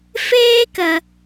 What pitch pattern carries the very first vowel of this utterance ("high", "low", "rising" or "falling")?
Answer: high